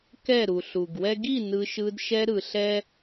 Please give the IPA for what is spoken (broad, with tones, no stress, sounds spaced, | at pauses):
k ɛ˦˨ ɾ u˨ ɬ u˨ ɡ w ɛ˦ ɡ i˦˨ n ɯ˧ ʃ ɯ˧ d ʃ ɛ˧ ɾ ɯ˨ ɬ ɛ˦